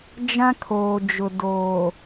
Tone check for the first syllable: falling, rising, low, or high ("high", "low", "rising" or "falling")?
high